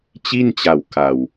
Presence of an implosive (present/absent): absent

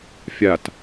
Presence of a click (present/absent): absent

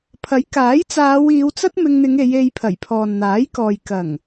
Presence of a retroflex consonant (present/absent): absent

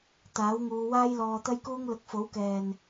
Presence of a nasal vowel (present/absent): absent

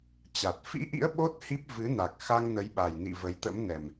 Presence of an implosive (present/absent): present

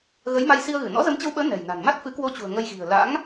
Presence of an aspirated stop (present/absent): absent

